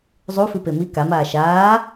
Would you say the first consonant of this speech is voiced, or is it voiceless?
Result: voiced